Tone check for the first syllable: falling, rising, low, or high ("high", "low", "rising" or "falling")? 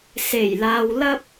low